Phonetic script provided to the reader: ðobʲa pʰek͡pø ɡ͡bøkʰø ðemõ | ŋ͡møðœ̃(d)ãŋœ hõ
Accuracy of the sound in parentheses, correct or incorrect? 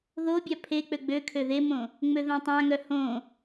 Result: incorrect